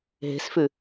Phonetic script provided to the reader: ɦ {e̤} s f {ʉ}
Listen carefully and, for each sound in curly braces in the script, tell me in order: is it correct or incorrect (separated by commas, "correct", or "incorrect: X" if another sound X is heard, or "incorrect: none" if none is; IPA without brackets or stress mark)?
correct, correct